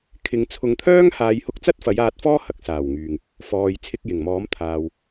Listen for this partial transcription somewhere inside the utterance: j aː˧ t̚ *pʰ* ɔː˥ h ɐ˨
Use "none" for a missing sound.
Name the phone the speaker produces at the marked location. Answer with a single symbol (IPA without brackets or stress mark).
f